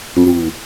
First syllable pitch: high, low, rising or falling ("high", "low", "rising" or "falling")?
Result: low